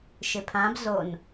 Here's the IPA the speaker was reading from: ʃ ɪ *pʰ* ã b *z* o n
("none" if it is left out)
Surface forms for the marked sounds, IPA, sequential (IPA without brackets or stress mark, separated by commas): pʰ, z